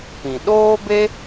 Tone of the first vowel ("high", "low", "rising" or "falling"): low